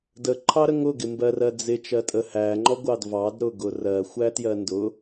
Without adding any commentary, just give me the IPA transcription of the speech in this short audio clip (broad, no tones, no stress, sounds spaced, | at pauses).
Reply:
d ə ǃʰ ɑ ɾ ə ŋ ʊ ɡ ɪ m b ɜ r ɜ d͡z ɪ t͡ʃ ɜ tʼ ə h æ ŋ͡ǃ ɔ ɡʷ ɑ d v ɑ d ɾ ʊ ɡ ʊ r ɜ xʷ æ t j ɜ n d ʊ